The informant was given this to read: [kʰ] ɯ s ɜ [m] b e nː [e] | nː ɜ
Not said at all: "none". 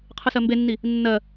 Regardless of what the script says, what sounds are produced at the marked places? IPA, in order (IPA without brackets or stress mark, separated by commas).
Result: qʰ, m, i